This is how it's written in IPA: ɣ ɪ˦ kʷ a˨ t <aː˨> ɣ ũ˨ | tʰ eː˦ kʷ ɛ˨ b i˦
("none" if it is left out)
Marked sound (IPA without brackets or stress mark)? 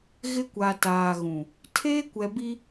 aː˨